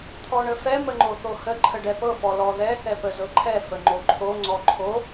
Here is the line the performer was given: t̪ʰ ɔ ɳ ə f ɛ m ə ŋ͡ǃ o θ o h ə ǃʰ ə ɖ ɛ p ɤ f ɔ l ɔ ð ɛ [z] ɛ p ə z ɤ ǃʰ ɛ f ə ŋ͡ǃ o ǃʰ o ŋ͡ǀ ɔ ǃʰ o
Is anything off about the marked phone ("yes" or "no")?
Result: yes